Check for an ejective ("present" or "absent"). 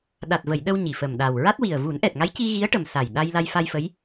absent